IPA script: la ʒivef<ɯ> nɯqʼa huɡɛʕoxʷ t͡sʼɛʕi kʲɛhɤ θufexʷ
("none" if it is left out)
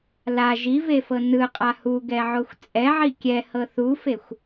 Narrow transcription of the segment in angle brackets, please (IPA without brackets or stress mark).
ɤ